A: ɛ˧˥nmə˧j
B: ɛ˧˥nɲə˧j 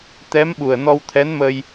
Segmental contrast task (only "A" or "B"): A